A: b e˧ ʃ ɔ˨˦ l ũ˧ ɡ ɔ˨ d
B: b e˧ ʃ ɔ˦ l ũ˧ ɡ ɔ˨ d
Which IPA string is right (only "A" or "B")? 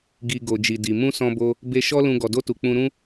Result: B